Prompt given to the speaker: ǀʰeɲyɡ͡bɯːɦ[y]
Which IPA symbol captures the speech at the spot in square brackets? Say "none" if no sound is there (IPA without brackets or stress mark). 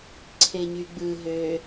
ø